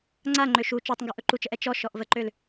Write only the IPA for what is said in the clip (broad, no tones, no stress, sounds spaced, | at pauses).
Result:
ŋ͡ǀ a ŋ͡ǃ ø ʃ u t͡ʃ ɔ tˤ ŋ ɡ ɵ ʔ ɵ ǃ u t͡ʃ ə ʔ ɛ t͡ʃ ɔ ʃ ɔ ʔ v ə ǃ ø l